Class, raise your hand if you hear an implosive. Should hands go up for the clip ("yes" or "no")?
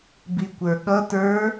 yes